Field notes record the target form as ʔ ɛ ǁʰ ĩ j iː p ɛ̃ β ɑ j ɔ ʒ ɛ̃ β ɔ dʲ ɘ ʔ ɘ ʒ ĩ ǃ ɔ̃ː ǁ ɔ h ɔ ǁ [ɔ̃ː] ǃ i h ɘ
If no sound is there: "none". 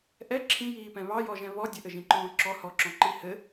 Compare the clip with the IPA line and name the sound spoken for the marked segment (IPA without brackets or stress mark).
ɔ̃